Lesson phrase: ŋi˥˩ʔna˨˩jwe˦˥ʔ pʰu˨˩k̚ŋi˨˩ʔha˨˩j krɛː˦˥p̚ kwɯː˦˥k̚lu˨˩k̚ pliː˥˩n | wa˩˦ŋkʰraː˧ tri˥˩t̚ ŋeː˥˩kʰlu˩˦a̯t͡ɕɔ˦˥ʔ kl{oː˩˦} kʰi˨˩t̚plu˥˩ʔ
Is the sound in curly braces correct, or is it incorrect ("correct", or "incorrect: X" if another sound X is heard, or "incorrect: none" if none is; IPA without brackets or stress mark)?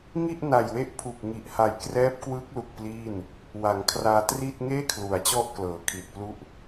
incorrect: ɤː˩˦